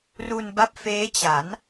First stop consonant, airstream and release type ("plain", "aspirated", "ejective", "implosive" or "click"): plain